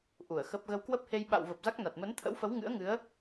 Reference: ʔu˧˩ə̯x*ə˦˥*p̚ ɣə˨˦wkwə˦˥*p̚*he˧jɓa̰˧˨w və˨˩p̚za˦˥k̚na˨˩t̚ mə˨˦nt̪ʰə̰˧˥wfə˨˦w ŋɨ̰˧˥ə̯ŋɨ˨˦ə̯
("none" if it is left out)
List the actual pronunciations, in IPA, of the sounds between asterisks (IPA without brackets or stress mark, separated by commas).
ə˦˥, p̚